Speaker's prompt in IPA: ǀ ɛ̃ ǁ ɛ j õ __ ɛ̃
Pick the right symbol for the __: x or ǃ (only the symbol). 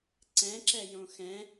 x